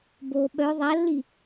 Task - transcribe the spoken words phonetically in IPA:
b o ɓ œ ðˤ a lː i

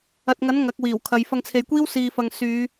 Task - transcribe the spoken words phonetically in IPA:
ɐ˨ t̚ ŋ ɐ˨˥ n ŋ ɐ˨˥ k̚ w iː˨˩ w kʰ ɐ˨˧ j f ɐ˧ ŋ t͡sʰ e˨ j kʷ iː˥ w s iː˨ f ɐ˨ ŋ s yː˨˧

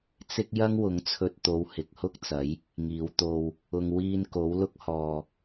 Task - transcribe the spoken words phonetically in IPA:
t͡s ɪ˥ k̚ j ɐ˥ ŋ w ʊ˨˥ ŋ t͡sʰ ɵ˧ t̚ t̪ o˨˧ w h ɪ˨˥ k̚ h ʊ˥ k̚ t͡s ɐ˨˥ j | ŋ iː˨˧ w t̪ o˧ w | ʊ˨ ŋ w iː˧ n k o˨˥ w l ʊ˥ k̚ h ɔː˨

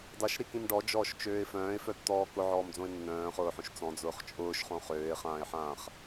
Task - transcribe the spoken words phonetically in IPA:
dˤ ʊ ʃ ɾ i k ĩ m ɖ ɔ d͡ʒ ɔː ʃ t͡ʃ øː ɪ̯ f œ̃ː ɪ̯ f œ tː ɔː k ʊ ʕ ɔː m d͡z õ ɪ̯ nː œ̃ː χ ʊː ħ õ ʃ t͡s ɔ̃ d͡z ʊː χ t͡ʃʼ ʊː ʃ χ õ χ øː ɪ̯ χ ãː ɪ̯ ħ ãː χ

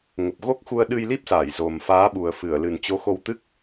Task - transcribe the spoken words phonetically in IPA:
ŋ ə˨˩ p̚ ɣ o˦˥ k̚ x u˧ ə̯ ɗ ɨ˧ j l i˦˥ p̚ s aː˧˩ j z o˨˩ m f aː˨˦ ɓ u˨˩ ə̯ f ɨ˧˩ ə̯ l ɨ˨˩ n t͡ɕ o˨˦ x o˧ w t̪ ɨ˦˥ k̚

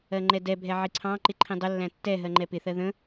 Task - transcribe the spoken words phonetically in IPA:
ɜ ŋ͡ǃ ɛ d ɛ bʱ ɛ ʕ i ǀʰ ɑ̃ ǃ ɪ ǃʰ ĩ dˤ ə lː æ̃ tː ɛ ɦ ɜ ŋ͡ǃ ɛ p ɪ θ ɜ ð ə̃

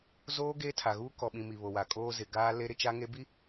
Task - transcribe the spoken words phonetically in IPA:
z oː˦ ɡ eː˦ tʰ a˨ ɣ uː˦ k ɔ˨ ɓ ĩ˨ m i˨ β o˨ w a˨ kʼ oː˦ z ɪ˨ ɡ aː˦ l e˦ ɾ ɪ˦ t͡ʃ a˦ ŋ e˦ b i˦

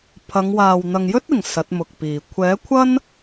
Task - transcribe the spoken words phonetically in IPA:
pʰ ɐ˨˧ ŋ w aː˨ w n̪ ɐ˨ ŋ j ɵ˥ t̚ ɪ˨˩ ŋ s ɐ˨˥ t̚ m ʊ˨ k̚ p iː˨ kʷʰ ɛː˨˥ kʷʰ ɐ˥ n

